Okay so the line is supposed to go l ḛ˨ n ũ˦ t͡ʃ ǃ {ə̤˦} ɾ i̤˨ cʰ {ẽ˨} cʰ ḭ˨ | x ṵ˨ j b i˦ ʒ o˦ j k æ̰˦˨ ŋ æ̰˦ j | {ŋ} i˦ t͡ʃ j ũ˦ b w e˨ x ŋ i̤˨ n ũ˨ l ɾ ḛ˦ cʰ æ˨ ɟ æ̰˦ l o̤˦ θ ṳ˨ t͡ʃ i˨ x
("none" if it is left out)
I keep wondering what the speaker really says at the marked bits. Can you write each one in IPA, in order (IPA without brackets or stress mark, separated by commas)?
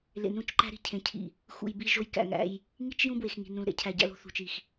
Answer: æ̤˦, ẽ˨, ŋ